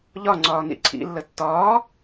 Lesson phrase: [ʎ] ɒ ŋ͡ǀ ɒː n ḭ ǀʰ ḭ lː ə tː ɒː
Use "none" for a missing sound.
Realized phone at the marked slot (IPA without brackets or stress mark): ʎ